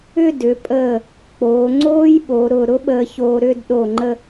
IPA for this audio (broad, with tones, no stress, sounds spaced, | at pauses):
ʏ˥˧ d ʏ˩˧ pʼ əː˧˩ | k͡p oː˩˧ ŋ͡ǀ oː˥ j ɓ o˩˧ ɾ ʊ˧˩ ɾ ʊ˥ ɓ əː˧ ç oː˧ ɾ ʏ˥˧ d ɗ o˧˩ ŋ͡ǃ ə˧